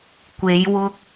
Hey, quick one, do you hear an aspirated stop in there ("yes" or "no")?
no